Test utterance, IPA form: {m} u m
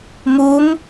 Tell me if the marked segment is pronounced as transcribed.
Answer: yes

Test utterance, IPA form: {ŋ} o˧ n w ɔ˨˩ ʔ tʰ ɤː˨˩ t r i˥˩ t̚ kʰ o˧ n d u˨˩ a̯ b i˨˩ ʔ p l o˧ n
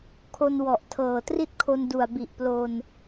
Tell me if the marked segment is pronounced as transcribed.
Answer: no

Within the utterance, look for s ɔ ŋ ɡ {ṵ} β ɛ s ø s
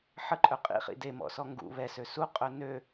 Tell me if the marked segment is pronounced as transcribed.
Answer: yes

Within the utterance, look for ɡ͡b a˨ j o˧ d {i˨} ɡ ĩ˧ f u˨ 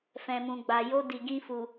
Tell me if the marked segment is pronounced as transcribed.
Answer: yes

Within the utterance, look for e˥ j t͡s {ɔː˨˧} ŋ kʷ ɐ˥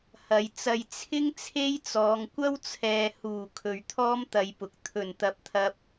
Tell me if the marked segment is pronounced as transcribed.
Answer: yes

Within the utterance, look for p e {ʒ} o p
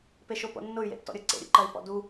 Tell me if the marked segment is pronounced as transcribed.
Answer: no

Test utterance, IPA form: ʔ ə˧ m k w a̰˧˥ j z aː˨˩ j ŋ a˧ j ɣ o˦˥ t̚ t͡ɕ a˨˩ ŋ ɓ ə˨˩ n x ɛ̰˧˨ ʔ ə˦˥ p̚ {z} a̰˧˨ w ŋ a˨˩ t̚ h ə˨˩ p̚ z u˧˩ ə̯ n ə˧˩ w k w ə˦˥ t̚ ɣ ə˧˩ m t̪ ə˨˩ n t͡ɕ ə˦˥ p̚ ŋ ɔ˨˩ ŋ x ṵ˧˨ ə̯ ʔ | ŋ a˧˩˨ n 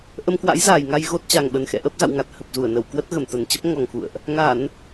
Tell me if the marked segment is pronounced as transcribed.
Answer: yes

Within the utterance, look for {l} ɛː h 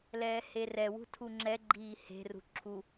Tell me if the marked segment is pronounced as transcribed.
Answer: yes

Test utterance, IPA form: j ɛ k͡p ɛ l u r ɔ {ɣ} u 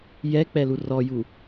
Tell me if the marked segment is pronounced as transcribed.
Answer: no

